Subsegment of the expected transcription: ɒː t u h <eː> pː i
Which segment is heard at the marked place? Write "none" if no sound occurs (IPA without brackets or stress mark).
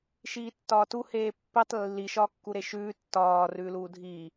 eː